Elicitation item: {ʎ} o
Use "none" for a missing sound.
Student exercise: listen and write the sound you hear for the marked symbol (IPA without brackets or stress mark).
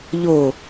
ʎ